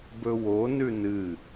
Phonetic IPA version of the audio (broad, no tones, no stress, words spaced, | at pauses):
bɵwo nʉnɨ